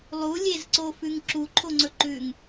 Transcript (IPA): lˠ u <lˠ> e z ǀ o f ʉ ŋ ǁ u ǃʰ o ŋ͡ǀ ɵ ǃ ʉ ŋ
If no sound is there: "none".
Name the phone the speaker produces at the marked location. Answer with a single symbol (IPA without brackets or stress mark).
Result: lʲ